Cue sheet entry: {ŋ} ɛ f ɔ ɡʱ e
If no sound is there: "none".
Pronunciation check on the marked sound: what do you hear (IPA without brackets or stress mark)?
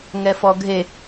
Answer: ŋ